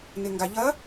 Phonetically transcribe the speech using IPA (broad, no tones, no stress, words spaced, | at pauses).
nɪŋɡaʎɐ